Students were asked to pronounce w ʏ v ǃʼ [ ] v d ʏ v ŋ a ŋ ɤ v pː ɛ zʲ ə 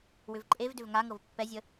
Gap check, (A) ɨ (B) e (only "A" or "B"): B